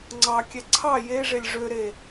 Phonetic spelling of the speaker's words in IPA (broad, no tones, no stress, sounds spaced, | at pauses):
ŋ͡ǀ ɑ kʲ ɛ ǀʰ ɑ j e ʐ e lʲ ʐ ø ɾ e